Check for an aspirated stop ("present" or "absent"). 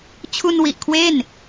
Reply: present